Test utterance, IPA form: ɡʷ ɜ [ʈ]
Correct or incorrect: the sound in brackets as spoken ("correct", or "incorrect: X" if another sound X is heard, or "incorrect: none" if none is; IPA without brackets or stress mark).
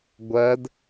incorrect: d